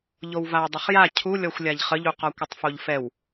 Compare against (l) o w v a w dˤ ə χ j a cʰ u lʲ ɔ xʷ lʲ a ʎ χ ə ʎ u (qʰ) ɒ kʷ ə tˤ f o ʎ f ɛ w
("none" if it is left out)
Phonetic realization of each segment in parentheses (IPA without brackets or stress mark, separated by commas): ʎ, q